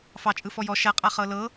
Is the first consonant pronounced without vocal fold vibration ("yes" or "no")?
yes